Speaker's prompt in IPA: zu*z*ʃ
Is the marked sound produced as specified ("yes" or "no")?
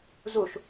no